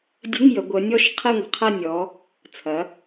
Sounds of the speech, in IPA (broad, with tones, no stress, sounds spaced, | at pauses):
dʲ ə̤˧˥˧ ŋ j ə˩˧ ɡʷ ə˩˧ nʲ ɔ˥˨ ʃ qʰ ɛ˥˨ ŋʷ ə̤˩˧ qʰ ɐ˥˨ nʲ ɔ˩˧ | t͡sʰ ɐ˩˧